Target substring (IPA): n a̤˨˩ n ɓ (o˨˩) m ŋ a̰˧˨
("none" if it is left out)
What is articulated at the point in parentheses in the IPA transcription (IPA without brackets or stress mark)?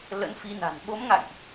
o˨˦